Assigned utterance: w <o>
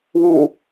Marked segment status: incorrect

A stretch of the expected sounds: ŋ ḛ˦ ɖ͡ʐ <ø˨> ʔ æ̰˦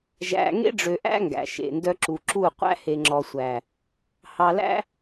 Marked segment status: correct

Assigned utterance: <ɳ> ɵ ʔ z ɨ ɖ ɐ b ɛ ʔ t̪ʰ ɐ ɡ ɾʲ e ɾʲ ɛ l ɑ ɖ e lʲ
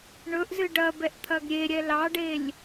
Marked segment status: correct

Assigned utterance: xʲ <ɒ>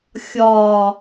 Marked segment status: correct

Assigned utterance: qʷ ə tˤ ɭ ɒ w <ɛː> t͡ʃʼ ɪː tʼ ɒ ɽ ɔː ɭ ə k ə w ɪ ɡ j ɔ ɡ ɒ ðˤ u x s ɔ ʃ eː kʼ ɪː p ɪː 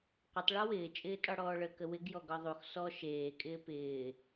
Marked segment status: incorrect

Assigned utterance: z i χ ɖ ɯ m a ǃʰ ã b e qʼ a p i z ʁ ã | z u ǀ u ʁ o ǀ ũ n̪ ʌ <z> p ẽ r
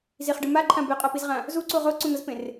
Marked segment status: correct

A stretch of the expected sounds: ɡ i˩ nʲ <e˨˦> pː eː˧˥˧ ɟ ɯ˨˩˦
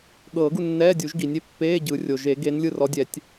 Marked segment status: incorrect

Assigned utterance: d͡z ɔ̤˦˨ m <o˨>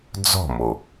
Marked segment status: correct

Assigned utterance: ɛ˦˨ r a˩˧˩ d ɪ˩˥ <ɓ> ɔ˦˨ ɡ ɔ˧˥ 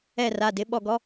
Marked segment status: correct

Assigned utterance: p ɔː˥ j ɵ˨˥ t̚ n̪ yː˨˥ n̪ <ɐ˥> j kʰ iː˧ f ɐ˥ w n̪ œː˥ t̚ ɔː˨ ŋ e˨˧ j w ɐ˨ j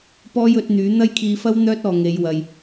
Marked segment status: correct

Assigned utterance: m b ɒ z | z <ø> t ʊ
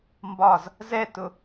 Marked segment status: incorrect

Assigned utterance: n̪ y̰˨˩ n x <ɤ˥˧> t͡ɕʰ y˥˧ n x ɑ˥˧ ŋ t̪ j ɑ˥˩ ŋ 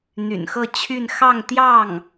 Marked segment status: correct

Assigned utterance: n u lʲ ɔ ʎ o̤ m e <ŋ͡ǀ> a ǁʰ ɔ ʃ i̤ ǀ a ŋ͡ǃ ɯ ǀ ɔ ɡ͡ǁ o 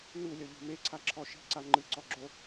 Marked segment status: incorrect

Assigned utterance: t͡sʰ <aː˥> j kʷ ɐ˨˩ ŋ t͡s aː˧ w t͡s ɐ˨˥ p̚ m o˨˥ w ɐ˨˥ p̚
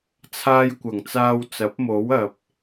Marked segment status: correct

